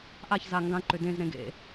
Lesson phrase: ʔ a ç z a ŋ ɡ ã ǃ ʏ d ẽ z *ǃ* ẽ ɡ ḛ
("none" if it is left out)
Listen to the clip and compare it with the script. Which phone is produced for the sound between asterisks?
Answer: ɾ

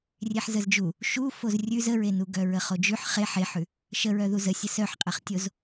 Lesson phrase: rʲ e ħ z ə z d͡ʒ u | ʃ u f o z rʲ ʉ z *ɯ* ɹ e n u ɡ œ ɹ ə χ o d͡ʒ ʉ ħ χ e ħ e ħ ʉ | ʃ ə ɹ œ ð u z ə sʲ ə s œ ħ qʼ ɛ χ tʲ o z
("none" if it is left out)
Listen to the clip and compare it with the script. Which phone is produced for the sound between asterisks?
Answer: ə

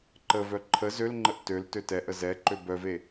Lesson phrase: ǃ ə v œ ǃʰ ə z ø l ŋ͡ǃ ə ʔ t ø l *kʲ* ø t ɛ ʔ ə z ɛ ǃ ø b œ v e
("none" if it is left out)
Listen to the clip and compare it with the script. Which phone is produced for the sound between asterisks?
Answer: t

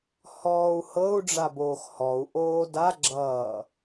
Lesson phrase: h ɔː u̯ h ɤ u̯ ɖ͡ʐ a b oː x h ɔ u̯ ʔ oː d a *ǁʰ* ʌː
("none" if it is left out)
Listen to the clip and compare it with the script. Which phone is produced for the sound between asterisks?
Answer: ɡ͡ǁ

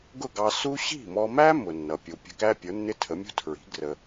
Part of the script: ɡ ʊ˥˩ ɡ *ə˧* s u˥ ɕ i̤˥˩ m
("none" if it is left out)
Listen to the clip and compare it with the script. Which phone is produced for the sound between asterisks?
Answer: ɑ˧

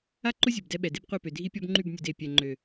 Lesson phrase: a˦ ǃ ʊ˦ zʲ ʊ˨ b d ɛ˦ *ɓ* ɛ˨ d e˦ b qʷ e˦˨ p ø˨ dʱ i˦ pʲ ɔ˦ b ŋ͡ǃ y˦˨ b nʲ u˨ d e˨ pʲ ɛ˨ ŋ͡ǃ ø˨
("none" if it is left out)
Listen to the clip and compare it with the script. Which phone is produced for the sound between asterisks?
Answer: ɓ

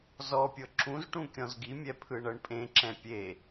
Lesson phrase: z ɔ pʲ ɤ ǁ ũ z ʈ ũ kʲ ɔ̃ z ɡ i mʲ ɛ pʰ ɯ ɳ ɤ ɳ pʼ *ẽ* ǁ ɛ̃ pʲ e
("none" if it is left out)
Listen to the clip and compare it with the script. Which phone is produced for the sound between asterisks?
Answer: ẽ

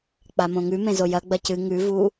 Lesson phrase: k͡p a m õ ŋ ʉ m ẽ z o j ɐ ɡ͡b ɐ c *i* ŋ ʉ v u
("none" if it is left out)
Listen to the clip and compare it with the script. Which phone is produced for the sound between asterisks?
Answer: ɨ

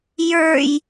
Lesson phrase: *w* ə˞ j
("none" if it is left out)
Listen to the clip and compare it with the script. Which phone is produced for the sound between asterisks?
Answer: j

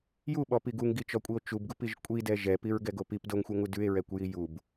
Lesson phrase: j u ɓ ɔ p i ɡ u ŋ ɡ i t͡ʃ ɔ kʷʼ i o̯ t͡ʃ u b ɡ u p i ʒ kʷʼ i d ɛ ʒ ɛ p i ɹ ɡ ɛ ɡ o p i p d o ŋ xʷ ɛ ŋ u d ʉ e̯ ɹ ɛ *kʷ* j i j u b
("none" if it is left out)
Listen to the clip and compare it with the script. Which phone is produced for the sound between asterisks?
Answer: kʷ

